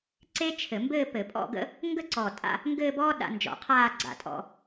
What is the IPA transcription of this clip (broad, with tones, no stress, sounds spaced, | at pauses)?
ǀ e˥ t͡ʃʰ ɘ˧˩˧ m b ɘː˥˧ p ɘ˧˩˧ pʼ ɔ̰˥˧ ɡ ə̰˥ | ŋ ɡ ə˥˧ ǀ ɔː˧˩ tʼ a̰˥˧ | ŋ ɡ ɘː˥˧ b ɔː˥ ɗ a̰˧ n d͡ʒ ɔ̰˧˩˧ qʰ aː˥˧ ɡ͡ǀ a̰˧˩ tʼ ɔ̰˧